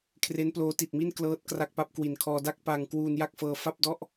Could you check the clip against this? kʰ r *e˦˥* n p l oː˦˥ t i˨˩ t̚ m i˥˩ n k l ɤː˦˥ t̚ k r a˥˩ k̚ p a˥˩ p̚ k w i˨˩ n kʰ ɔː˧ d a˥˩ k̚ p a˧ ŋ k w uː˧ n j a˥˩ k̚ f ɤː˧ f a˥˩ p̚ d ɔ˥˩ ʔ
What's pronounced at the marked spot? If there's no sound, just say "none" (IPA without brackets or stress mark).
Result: e˦˥